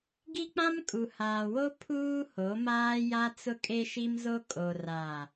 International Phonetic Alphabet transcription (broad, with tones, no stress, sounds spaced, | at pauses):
ɡ i˦ k͡p ã˦ m kʼ u˨ h aː˨ w o˦ pʰ uː˦ h o˨˦ m aː˦ j a˦ t͡s ʊ˦ kʼ e˦ ʃ i˦ m z o˦ kʼ o˨ r aː˨